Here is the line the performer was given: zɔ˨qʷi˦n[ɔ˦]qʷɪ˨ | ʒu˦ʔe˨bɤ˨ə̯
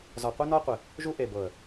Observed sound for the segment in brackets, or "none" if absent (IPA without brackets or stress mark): ɔ˦